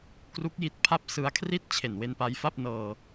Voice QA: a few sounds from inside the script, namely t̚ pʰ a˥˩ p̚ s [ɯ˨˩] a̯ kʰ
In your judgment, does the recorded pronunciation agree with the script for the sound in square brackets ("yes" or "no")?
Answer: no